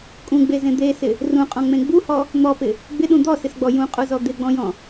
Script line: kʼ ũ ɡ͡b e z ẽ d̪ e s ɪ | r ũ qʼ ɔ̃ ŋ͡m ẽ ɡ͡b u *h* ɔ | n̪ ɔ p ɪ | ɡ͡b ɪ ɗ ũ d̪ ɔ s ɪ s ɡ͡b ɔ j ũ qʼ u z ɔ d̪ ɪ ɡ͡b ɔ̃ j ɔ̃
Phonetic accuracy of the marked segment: correct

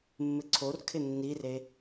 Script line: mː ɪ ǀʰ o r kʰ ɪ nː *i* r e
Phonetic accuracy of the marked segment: correct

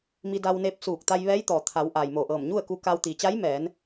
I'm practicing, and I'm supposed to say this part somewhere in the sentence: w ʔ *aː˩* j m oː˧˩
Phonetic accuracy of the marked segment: correct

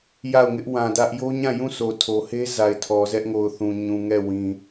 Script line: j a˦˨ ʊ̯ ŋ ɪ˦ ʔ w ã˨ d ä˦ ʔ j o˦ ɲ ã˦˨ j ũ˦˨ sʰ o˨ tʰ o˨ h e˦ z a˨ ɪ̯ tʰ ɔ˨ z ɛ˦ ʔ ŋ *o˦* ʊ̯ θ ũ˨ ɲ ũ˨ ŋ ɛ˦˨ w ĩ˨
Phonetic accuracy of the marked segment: incorrect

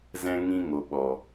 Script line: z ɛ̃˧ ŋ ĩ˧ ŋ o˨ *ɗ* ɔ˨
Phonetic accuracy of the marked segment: incorrect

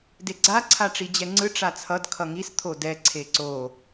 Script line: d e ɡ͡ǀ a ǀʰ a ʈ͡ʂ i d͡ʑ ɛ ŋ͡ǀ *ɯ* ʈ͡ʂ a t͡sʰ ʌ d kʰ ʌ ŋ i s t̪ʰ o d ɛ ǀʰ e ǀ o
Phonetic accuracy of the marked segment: correct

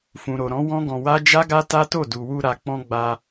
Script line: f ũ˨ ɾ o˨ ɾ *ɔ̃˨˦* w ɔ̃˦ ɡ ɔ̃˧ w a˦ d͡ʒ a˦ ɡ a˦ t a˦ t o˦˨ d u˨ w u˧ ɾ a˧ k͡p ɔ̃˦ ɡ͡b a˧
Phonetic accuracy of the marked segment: correct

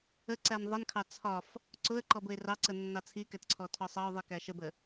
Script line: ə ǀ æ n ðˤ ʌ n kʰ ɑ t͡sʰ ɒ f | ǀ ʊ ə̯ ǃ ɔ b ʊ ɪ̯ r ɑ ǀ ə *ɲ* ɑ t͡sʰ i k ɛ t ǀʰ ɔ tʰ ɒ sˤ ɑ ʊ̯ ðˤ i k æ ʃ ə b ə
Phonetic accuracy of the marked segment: incorrect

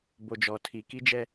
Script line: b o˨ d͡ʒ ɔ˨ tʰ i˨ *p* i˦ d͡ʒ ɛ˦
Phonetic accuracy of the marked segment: incorrect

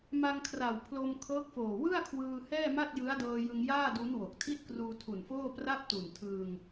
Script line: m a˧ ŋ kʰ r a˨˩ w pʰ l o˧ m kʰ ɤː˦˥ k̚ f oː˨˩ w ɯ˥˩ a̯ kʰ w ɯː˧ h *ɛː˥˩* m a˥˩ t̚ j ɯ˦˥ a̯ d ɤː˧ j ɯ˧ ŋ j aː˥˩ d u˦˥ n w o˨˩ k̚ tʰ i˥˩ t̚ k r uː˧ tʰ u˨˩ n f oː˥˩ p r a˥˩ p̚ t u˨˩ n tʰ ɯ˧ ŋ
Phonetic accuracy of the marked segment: correct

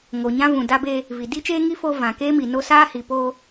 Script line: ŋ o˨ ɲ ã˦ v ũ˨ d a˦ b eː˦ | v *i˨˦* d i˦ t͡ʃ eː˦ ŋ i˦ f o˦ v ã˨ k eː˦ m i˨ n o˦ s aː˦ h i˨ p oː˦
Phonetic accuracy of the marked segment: incorrect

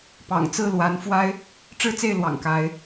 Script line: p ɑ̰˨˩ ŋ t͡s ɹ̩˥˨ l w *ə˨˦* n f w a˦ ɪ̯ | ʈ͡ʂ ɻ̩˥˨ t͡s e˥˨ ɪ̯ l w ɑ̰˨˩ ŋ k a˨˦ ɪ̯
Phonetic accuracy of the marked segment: incorrect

